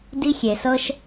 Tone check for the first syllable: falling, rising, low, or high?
high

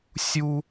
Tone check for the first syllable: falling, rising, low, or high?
high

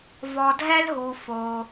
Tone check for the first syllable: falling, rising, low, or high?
low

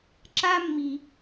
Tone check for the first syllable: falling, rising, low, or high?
high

